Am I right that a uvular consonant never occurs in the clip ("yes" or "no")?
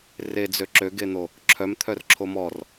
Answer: yes